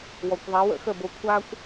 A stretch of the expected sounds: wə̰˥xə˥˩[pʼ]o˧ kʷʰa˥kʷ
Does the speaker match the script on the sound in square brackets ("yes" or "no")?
no